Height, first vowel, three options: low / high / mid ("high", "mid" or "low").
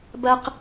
low